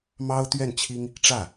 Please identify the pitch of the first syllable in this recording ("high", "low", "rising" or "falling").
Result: high